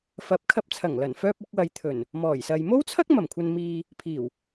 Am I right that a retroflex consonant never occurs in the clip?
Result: yes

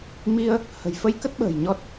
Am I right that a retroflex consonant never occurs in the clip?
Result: yes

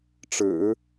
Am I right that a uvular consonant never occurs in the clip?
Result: yes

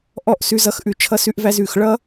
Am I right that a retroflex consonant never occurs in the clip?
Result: no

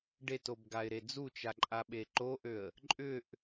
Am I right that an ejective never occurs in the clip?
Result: no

